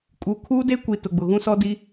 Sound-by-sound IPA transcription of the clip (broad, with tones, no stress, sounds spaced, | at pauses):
kʼ u˨ kʰ uː˦ d e˦ kʷ i˨ t ʊ˨ ɡ͡b ʊ˨ ɣ ũ˦ s ɔ˦ d i˦